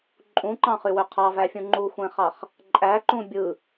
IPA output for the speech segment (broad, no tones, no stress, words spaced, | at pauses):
ǃʼũǃɑ̃χywø qʰɑvæfʲũ ŋ͡ǃuxʷẽχɑχ | ǃʼæǃũ bʲɯ